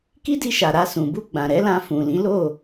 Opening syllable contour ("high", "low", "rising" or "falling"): high